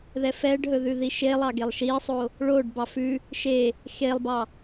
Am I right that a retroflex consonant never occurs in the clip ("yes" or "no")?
no